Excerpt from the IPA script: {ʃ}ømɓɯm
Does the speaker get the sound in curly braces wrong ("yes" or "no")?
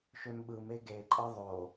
no